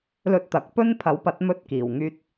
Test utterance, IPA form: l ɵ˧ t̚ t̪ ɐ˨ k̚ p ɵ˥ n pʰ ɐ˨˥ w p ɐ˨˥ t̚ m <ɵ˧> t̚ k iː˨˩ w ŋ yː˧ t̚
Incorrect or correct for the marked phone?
correct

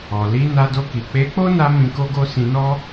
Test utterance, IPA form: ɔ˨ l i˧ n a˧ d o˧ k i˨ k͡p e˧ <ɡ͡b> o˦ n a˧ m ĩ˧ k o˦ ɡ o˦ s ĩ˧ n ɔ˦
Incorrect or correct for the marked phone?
incorrect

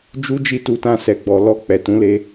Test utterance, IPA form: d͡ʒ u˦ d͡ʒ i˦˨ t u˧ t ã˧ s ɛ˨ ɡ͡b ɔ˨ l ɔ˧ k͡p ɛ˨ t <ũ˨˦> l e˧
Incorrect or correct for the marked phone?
correct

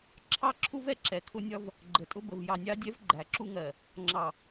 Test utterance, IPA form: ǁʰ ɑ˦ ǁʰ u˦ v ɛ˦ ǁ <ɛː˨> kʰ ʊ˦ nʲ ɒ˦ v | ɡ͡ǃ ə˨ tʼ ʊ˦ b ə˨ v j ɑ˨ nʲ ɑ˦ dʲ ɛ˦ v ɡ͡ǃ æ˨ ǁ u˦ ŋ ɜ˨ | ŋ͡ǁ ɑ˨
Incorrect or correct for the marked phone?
incorrect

